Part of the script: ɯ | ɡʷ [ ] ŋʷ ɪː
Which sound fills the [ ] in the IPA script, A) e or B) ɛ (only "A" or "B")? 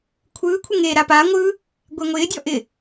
B